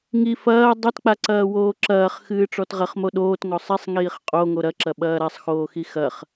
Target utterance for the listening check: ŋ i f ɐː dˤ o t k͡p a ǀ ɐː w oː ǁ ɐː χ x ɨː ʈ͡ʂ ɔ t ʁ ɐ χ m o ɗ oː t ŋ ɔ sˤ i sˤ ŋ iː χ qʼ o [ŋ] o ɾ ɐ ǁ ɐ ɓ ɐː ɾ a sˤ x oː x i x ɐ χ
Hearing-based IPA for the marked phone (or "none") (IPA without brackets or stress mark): ŋ